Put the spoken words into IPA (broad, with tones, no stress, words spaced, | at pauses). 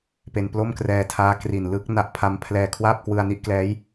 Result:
pe˧nplo˥˩mkrɛː˧tʰaː˦˥ kri˨˩nlɯ˦˥k̚ na˦˥ʔpʰa˦˥mpʰlɛː˧ kʰwaː˥˩p̚kwɯ˧a̯ni˥˩ʔklɛː˦˥j